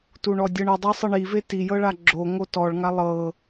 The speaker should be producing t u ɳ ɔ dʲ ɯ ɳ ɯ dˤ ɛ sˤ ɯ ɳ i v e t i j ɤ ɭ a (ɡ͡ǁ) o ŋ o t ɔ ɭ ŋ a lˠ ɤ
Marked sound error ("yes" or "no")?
no